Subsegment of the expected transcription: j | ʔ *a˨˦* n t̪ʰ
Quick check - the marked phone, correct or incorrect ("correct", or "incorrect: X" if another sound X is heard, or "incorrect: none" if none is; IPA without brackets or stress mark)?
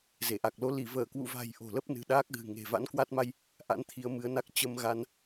incorrect: a̰˧˥